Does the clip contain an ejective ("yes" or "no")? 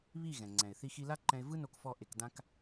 no